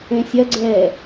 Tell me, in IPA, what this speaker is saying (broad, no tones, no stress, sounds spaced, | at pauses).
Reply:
ẽ sʲ ɐ ɡ͡ǀ ɛː